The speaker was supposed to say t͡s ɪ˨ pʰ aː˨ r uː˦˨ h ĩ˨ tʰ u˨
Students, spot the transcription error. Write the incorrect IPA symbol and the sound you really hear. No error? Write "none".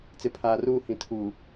u˨ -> uː˨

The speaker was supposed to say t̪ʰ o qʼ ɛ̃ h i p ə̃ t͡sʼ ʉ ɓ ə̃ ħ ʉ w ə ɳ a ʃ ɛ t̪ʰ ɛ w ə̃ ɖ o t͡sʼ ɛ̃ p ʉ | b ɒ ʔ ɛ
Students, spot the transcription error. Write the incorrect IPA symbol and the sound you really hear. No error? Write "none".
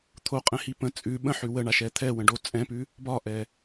none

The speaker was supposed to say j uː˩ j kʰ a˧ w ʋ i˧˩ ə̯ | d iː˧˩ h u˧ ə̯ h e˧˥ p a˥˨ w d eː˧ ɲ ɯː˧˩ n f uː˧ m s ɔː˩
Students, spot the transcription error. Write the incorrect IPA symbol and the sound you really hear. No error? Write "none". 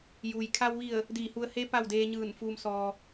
none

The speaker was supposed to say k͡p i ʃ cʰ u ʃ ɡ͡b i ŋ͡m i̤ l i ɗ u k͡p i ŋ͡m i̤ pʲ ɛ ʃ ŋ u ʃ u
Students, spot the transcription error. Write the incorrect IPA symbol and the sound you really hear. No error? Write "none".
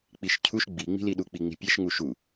none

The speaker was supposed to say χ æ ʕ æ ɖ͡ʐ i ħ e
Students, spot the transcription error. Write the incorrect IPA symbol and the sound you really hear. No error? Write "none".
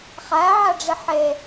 none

